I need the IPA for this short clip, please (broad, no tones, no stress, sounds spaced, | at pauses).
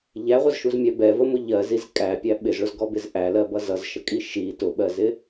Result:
ʎ æ ʁʷ ʌ z ʃ u z mʲ æ b ɛ v ə m ʊ ʎ ɜ z i z kʼ æ pʲ æ ɓ ɪ z ɭ ʊ z ɡ ɔ b ɪ z ʔ æ l ɜ b ʌ z ʌ z ʃ ə kʼ i ʃ i t ʊ ɓ ɜ z ɪ